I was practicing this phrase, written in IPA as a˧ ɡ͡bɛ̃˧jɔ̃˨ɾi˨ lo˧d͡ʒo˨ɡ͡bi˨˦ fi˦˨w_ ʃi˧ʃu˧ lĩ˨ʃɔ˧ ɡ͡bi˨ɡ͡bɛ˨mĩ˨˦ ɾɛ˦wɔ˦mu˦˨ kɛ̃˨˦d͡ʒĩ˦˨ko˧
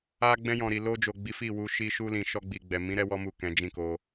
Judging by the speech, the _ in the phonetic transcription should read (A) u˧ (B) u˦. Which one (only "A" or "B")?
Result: A